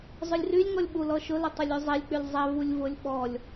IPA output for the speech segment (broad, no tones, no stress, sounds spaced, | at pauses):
zˤ ʊ lʲ r y lʲ ŋ ɔ lʲ ɓ u l ɔ ʃ ʊ l ʊ tˤ ʊ lʲ y zˤ e lʲ k͡p y lʲ zˤ ɛ v u lʲ v ʊ lʲ ɓ ɔ lʲ